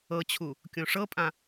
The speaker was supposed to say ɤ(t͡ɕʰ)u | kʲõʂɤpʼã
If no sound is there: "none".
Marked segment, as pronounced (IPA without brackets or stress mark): t͡ɕʰ